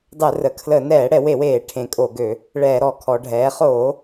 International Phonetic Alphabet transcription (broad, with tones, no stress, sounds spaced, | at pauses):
dˤ ɛ˧˩˧ r ə˩˧ kʰ l ə˧˩˧ n ɛː˧˩˧ ɽ ɛ˧˩˧ w e˧˩˧ w eː˧˩˧ ʈʰ ẽ˧˩˧ kʼ o˧˩˧ ɡ ø˧˩˧ | ɭ ɛː˧˩˧ ɾ ɔ˧˩˧ kʰ ɔː˩˧ ɖʱ ɛː˩˧ χ oː˧˩˧